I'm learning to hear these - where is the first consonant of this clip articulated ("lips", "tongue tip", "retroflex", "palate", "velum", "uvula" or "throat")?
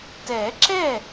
tongue tip